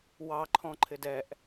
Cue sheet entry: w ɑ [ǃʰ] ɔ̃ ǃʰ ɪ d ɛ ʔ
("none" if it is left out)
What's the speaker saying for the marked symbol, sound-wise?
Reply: ǃʰ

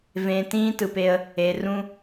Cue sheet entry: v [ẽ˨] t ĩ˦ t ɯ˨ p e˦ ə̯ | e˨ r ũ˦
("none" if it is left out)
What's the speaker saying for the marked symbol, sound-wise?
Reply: ẽ˨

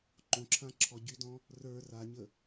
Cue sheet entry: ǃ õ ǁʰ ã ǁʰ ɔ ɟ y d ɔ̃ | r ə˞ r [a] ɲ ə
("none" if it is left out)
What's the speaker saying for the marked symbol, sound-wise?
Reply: a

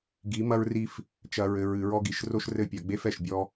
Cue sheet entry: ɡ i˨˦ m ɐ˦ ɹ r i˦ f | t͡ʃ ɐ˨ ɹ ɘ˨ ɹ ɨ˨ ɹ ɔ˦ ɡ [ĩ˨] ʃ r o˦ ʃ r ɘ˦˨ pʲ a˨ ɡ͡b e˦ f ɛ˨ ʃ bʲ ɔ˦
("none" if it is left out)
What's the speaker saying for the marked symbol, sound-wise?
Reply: i˨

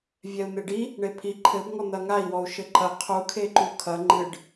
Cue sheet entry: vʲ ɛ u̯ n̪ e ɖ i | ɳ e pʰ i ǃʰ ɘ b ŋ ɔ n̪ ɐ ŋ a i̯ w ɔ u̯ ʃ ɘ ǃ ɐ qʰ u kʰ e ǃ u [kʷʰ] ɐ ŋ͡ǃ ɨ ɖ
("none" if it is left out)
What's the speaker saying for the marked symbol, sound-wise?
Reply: kʰ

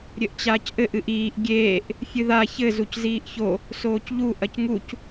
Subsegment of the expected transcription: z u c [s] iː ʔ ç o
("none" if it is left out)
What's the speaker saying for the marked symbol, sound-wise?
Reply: z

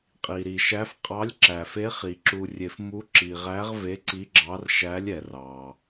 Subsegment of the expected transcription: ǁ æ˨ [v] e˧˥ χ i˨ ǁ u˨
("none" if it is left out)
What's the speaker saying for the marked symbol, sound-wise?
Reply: f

